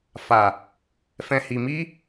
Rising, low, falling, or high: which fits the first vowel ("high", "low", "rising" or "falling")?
low